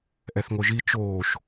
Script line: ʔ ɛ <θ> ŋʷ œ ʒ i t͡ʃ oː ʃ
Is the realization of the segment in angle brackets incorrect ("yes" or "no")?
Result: no